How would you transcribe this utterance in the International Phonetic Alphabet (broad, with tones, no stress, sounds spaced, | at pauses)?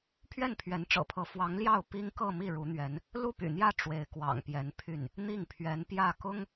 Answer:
pʰ ɥ ɛ˥˩ n pʰ ɥ ɛ˧˥ n ʈ͡ʂ ɤ̰˨˩ pʰ ɤ˧˥ f w ɑ˧˥ ŋ l j ɑ˥˩ ʊ̯ p i˥ ŋ k ɤ˥˧ m i˥˩ ɻ u˧˥ n̪ ɥ ɛ˧˥ n | l u˥˩ p y̰˨˩ n̪ j ä˥˩ ʈ͡ʂ w e˧˥ ɪ̯ k w ɑ̰˨˩ ŋ p j ɛ˧˥ n pʰ y˥˩ n | n̪ i˥˩ ŋ pʰ ɥ ɛ˧˥ n p j ä˥˩ k ʊ˥ ŋ